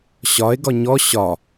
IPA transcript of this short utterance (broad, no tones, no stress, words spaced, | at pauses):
ɕɒe̯ ɡɒɲɔ ɕɒ